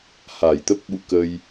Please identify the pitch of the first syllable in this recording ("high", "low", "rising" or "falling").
low